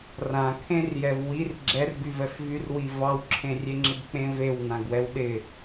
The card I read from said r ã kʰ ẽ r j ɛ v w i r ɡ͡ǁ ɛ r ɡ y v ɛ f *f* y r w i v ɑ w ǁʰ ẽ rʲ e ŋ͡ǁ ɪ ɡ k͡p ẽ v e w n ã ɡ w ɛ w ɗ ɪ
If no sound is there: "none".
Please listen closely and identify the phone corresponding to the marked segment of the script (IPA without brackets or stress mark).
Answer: v